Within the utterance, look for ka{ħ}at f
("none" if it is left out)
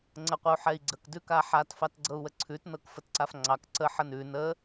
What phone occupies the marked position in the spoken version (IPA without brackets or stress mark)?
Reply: ħ